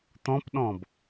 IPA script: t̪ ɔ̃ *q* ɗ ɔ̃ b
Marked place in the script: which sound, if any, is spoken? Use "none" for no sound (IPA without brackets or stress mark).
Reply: p